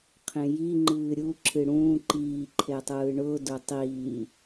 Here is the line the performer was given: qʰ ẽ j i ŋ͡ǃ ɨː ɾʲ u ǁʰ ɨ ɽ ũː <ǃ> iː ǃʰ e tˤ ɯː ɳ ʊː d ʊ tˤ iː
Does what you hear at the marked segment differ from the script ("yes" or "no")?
no